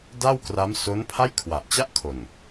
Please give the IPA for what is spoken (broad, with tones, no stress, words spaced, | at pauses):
da˥˩wkra˦˥m so˦˥npʰa˥˩j kʰwa˨˩ʔt͡ɕa˥˩ʔkʰo˨˩n